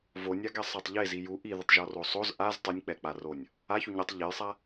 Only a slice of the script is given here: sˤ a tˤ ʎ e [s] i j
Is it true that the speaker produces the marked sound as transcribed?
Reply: no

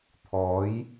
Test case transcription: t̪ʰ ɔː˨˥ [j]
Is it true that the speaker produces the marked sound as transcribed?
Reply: yes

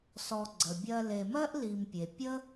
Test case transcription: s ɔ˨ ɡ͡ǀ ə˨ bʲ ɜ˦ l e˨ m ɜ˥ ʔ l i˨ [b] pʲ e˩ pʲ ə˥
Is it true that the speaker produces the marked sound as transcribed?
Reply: no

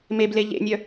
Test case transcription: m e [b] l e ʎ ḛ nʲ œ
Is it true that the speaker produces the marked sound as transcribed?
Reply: yes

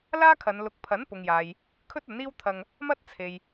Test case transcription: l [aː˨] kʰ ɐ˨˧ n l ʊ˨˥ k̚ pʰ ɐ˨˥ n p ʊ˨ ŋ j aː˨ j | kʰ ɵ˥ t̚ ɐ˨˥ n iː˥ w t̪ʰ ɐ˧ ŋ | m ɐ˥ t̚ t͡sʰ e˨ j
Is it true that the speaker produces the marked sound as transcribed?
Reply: no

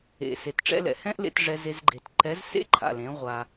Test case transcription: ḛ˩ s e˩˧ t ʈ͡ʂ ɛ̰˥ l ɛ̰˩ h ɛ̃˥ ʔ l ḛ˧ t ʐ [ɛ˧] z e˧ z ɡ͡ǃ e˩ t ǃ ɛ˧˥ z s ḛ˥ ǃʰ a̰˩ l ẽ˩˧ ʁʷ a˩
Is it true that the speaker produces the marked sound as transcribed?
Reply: yes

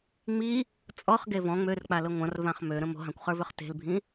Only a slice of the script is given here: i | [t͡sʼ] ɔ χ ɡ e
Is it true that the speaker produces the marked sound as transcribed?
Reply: yes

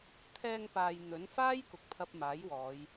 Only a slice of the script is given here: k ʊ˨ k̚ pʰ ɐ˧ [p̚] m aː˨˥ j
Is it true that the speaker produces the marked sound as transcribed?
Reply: yes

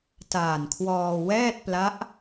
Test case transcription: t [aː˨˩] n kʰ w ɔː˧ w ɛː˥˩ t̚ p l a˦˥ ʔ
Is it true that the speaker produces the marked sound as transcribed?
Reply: yes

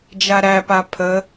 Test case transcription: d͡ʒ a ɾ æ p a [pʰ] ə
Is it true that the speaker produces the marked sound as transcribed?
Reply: yes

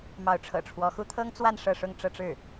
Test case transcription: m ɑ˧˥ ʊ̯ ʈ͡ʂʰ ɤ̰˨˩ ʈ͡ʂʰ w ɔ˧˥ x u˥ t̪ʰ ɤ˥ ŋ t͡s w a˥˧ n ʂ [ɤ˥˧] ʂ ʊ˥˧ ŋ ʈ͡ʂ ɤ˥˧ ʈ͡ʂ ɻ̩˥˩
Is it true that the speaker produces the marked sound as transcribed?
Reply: yes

